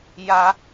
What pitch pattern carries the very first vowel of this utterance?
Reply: rising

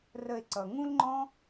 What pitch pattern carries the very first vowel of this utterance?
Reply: low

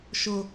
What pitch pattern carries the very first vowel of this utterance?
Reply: low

